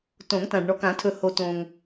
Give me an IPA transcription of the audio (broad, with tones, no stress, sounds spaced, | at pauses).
t õ˨˩˦ ŋ t ã˨ ɖ ɳ ɔ˨ k ã˨˩˦ tʰ ɵ˨ h o˨ t õ˨ ŋ